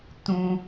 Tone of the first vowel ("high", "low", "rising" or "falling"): low